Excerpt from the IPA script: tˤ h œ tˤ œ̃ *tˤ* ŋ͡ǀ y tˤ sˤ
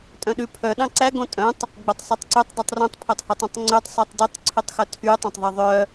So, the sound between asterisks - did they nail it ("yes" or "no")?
yes